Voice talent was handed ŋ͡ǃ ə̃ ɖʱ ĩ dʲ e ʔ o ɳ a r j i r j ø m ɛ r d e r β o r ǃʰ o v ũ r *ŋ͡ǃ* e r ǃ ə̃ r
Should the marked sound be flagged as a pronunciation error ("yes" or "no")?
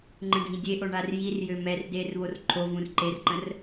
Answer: yes